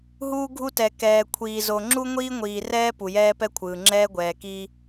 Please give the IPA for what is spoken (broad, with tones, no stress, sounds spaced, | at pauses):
ɦ uː˦ ɡʱ u˦ t ɛ˨ k ɛː˨ kʷʰ iː˨ z o˨ ŋ͡ǁ u˦ ŋʷ iː˦ ŋʷ iː˨ r ɛː˦ p u˨ j ɛː˦ p ɛ˦ kʷʰ ɯː˨ ŋ͡ǁ ɛː˦ ɡʷ ɛː˨ k iː˦